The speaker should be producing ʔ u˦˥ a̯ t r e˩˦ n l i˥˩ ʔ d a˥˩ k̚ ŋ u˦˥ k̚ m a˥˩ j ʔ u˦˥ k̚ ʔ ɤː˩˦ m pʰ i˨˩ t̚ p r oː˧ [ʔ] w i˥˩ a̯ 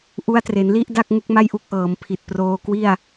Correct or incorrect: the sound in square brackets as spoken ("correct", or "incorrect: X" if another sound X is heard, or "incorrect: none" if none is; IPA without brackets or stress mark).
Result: incorrect: k